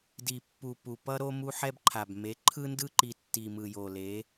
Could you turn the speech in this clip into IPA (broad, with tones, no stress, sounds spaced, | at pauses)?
d i˨ pː u˨ p u˨ p ʌ˦ ɾ o˦ m u˦ ħ ɛ˦ b ǃʰ a˨ b m e˨˦ ǃʰ ɯ˦ n d ɯ˦ ǃ i˨ tː i˨ m ɯ˨ j o˨ l e˨˦